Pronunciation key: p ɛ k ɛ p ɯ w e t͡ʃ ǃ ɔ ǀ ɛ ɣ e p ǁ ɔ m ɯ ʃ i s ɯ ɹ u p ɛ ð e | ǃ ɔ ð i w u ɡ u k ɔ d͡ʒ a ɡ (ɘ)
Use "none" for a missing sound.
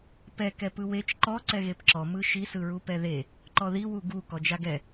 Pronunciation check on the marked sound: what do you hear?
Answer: ɛ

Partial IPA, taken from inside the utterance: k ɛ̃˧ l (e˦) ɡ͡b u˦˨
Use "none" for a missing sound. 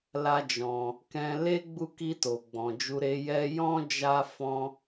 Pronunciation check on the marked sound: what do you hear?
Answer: e˦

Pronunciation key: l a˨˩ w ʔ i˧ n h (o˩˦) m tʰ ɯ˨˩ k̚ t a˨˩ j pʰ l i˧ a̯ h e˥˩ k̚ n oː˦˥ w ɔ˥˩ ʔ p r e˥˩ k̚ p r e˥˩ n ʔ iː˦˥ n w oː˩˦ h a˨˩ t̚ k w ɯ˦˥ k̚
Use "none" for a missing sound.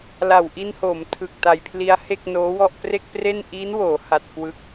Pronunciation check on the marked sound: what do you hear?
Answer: o˩˦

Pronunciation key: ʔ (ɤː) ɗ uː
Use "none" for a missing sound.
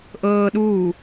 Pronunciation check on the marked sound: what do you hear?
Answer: ɤː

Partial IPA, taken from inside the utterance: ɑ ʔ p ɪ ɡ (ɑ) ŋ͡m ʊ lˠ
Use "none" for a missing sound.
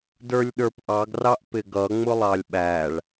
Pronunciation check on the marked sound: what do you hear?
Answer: ʌ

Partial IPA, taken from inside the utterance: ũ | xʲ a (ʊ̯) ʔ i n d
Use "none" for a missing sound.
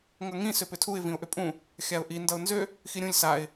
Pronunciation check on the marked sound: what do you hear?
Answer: ʊ̯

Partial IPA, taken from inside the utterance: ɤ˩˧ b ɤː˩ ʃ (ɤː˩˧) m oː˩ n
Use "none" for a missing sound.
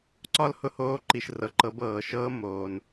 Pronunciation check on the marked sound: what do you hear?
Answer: ɤː˧˥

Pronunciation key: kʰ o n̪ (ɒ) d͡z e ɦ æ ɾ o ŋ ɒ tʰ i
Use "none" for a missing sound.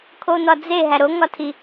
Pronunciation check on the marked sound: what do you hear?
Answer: ɒ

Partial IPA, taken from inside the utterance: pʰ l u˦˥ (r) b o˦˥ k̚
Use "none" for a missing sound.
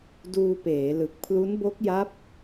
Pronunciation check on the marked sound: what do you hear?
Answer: n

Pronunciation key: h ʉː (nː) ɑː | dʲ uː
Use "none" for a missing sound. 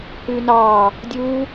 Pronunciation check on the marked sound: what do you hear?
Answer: n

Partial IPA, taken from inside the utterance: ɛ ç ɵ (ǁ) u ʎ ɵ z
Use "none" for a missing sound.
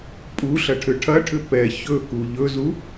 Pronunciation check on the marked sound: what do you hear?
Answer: k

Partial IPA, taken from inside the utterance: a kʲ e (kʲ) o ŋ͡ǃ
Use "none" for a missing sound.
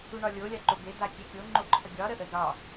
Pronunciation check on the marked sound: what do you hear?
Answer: kʲ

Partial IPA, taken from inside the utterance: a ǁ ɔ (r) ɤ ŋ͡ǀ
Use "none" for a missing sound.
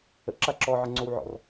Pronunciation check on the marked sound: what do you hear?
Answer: ʕ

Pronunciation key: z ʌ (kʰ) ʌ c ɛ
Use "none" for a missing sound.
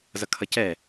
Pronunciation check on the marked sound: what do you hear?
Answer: kʰ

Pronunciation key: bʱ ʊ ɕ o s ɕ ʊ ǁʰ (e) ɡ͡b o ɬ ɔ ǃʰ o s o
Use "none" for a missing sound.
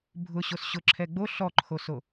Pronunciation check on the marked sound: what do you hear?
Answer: ɛ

